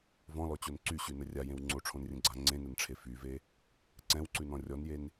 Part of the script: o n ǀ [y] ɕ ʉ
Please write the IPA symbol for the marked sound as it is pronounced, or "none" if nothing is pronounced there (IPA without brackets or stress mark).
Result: y